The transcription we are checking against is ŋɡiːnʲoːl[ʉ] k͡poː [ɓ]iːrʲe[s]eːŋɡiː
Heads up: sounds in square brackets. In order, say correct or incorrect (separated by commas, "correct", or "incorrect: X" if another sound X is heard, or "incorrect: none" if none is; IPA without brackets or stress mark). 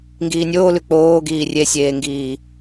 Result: correct, incorrect: ɡ, incorrect: sʲ